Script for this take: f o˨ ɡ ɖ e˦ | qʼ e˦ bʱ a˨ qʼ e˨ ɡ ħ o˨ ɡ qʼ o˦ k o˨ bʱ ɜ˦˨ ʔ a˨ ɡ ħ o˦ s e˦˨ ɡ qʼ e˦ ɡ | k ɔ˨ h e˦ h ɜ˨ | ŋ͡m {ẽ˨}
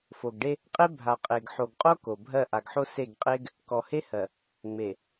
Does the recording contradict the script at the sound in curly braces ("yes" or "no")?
yes